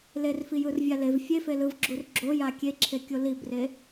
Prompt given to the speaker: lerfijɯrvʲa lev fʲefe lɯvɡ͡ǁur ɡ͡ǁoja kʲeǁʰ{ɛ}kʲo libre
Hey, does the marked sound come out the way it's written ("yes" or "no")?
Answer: no